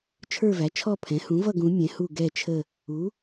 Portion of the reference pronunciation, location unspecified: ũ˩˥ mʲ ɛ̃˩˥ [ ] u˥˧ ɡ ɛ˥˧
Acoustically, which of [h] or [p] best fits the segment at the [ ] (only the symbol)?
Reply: h